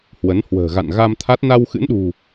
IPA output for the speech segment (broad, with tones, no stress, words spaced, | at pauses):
hwə˨˦n hwə̤ː˨˩ɣa̰˧˨n ɣa˧m t̪ʰa˦˥t̚ na˧wxɨ̰˧˥nɗṳ˨˩